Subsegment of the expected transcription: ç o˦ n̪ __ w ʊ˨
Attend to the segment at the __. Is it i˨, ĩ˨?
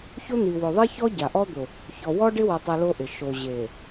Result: i˨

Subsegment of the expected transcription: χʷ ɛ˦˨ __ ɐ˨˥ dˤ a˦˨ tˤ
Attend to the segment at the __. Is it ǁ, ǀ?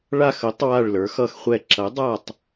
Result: ǁ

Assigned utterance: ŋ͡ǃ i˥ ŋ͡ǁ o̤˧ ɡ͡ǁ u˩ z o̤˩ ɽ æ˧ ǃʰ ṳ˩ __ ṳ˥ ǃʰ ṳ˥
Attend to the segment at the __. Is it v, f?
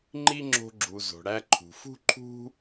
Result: f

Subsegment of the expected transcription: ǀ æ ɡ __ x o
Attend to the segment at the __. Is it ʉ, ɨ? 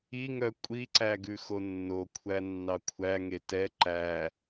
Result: ʉ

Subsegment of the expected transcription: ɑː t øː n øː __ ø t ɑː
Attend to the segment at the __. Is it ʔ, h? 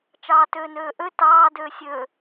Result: ʔ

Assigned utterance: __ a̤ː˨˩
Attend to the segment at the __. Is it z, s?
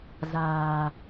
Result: z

